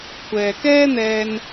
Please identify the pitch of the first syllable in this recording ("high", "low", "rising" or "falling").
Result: low